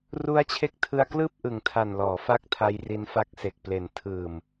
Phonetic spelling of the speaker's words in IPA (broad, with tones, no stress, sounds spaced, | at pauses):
r u˦˥ a̯ t͡ɕʰ e˦˥ k̚ tʰ ɯ˧ a̯ k l ɯː˥˩ p̚ ʔ ɯ˨˩ ŋ tʰ a˨˩ n l ɔː˩˦ f a˦˥ k̚ tʰ a˧ j r i˧ n f a˦˥ k̚ s e˨˩ k̚ p l e˨˩ n tʰ ɯː˨˩ m